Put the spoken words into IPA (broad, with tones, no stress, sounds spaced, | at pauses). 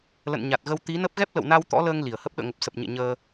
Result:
l ə̰˧˨ n ɲ a˨˩ t̚ ɣ ə˧ w t̪ i˨˦ n ə˦˥ p̚ ɣ ɛ˦˥ p̚ l ə̰˧˨ w n a˧ w t̪ ɔ̰˧˥ l əː˧ ŋ l i˧˩ ə̯ h ə˦˥ p̚ ɗ ə̰ː˧˨ ŋ ə˨˩ p̚ s ə˨˩ p̚ ɲ ḛ˧˨ ɲ əː˧